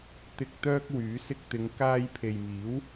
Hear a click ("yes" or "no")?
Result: no